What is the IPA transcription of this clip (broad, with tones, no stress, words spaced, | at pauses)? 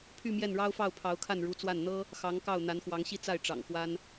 pʰy˥˧mjɛ˥˩nɻɑ˥ʊ̯fɑ˥˩ʊ̯ pʰɑ˧˥ʊ̯kʰa˥˩nɻu˧˥t͡swa˥˩n n̪ɤ˥ | xɑ˧˥ŋkɑ˥˩ʊ̯ n̪a˧˥nxwɑ˧˥ŋɕi˥ t͡sa˥˩ɪ̯ ʈ͡ʂɑ̰˨˩ŋxwa˥n